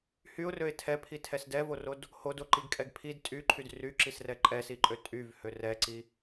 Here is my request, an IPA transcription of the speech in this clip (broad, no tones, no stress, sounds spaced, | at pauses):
h y ʊ̯ r ø ɪ̯ tʰ ɛ pʰ i tʰ ɛ s d ɛ v o r o d | h o d o ǃ i ɡ kʼ ɛ ɡ pʰ i d tʼ y ǃʰ y d r y ǁ i s r ɛ ǃʼ ɛ s i ǃʼ ø tʼ y v h ø r ɛ ǀ i